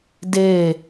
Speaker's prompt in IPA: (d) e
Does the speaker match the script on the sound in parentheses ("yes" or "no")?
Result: yes